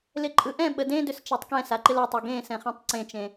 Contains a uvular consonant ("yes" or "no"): yes